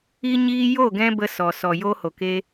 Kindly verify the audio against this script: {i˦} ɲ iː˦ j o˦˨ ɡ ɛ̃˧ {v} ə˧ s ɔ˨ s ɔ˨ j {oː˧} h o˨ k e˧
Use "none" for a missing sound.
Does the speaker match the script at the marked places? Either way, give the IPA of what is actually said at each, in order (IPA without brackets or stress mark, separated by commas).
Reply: i˦, b, oː˧